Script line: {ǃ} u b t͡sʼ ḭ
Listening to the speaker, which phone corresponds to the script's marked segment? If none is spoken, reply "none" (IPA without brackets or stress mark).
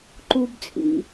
ǃ